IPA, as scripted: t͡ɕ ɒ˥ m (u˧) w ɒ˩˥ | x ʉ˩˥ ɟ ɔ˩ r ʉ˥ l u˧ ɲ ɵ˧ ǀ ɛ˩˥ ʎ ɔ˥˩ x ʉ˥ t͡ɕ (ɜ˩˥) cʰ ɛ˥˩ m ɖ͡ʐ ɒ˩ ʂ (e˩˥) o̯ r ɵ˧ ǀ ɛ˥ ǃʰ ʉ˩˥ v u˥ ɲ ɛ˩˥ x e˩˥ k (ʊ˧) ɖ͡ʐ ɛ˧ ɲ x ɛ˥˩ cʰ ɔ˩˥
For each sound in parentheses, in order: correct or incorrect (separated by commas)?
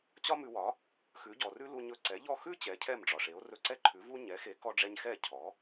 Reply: incorrect, incorrect, correct, incorrect